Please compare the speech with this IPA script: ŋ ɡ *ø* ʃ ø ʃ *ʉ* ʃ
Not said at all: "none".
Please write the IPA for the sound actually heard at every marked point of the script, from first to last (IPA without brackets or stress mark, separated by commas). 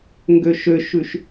ø, ʉ